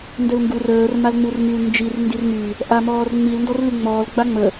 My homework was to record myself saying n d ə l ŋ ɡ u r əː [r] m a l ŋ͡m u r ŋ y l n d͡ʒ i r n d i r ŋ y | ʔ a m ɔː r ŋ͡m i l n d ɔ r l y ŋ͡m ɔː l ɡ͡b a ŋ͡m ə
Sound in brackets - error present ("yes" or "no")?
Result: no